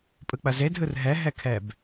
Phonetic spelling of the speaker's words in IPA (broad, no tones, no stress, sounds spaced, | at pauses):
pʼ ɯ k͡p ɐ z e dʱ ɯ r ɦ ɛ ɦ ɛ kʰ ɛ b